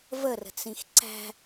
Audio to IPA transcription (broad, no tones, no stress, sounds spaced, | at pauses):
v ə r ə̤ t͡s ĩ x ǀ æ̤